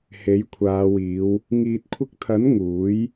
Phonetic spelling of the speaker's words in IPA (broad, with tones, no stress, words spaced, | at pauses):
he˨˥jkʷʰaː˨˧wiː˨˧w | ŋiː˨t̚kʷʰɪ˧k̚t̪ʰɐ˨˥n ŋuː˨˥j